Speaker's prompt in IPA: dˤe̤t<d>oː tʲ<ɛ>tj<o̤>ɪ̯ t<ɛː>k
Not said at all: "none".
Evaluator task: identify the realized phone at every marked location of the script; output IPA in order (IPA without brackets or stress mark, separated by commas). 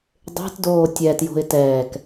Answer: d, ɛ, o̤, ɛː